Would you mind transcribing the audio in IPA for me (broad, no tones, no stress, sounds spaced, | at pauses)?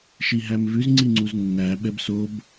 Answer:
ʃ i ɦ æ m v ʉ z ŋ͡ǀ i ŋ͡ǀ u z nː æ ɓ ɛ b s o b